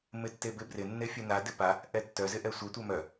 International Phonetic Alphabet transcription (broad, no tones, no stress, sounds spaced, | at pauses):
m ɪ tː e b ɪ b r ɪ nː e fʲ œ n a d ɪ p a | ʔ ɛ tː œ z ɪ ʔ ɛ sʷ œ tʷ œ m œ